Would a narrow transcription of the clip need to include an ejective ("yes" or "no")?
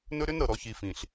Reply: no